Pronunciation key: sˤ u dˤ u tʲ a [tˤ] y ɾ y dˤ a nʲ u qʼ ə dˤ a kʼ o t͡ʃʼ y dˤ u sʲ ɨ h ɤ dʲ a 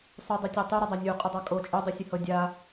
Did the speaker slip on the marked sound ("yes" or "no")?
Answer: no